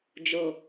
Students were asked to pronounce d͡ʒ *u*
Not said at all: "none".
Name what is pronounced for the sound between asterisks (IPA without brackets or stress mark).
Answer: o